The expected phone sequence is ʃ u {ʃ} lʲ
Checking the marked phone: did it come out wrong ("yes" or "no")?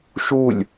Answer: yes